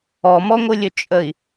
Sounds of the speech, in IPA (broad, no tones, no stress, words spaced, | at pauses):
ɔmɔŋʷɯlʲɵ t͡ʃʼəi̯